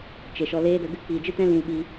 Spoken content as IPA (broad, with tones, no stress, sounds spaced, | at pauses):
t͡ʃ e˨ ʃ ɔ˧ l eː˦ d ə˧ ɡ ɨ˦ k͡p iː˨ d͡ʒ ɨ˦ t ɛ̃˦ l ĩ˧ l ɓ i˧